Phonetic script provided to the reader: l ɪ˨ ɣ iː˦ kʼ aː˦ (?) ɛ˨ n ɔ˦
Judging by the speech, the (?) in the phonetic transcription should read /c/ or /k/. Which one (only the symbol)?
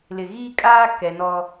k